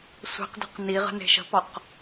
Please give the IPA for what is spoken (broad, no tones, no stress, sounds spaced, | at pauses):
sʷ i̤ q d e̤ q n i ʁ ə̤ n e̤ ʃ ə̤ p ɔ q